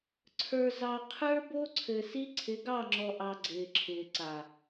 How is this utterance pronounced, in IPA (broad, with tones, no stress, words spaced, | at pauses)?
ǀʰə˞˨zɑ˨ qʰə˞˦ bo˦ǀʰɘ˨si˦ ǀʰɪ˨˦ɡɑ˦˨ŋ͡ǁɔ˨ʔɑ˨ ɡ͡ǀɪː˨ǁʰɪː˨ǀa˨